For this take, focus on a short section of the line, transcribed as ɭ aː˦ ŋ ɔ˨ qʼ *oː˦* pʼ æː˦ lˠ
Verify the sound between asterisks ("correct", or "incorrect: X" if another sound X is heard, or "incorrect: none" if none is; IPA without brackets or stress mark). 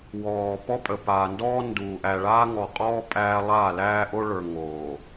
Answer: incorrect: ɔː˦